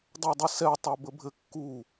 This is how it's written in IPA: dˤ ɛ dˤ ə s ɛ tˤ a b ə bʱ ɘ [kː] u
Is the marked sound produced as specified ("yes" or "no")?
yes